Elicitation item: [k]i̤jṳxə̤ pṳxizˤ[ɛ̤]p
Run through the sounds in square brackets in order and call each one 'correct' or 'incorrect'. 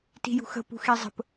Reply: incorrect: t, incorrect: ə̤

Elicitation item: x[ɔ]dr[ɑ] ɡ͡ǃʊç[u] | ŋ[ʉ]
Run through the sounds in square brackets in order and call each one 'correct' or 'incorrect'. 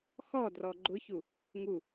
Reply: correct, incorrect: ɔ, correct, incorrect: u

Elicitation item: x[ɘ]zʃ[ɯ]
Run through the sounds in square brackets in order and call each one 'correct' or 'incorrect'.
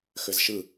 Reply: correct, correct

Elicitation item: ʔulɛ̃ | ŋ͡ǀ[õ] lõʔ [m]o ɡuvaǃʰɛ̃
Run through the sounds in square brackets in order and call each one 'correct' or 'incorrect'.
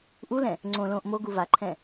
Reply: correct, correct

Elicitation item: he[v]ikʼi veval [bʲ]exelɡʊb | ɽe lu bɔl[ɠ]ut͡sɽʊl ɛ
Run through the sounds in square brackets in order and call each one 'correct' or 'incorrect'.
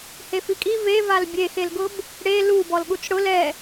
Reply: incorrect: f, correct, correct

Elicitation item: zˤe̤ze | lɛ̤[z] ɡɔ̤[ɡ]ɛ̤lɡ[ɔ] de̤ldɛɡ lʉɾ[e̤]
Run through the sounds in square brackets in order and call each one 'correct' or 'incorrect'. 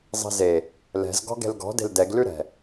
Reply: correct, correct, incorrect: ɔ̤, incorrect: ɛ̤

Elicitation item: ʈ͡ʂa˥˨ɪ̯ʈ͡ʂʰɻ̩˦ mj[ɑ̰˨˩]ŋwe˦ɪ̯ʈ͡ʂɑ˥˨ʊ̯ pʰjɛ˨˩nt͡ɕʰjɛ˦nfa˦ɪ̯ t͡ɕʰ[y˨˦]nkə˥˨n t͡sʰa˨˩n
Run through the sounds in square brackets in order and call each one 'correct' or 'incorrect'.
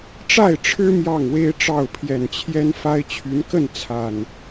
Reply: incorrect: ɑ˥˨, correct

